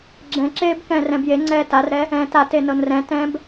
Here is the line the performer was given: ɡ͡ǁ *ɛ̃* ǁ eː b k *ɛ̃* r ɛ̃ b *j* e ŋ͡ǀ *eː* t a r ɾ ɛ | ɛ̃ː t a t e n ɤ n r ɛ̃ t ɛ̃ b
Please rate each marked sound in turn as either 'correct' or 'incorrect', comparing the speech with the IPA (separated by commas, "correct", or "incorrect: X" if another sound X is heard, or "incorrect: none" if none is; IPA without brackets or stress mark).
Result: correct, incorrect: ɛ̃ː, correct, incorrect: ɛː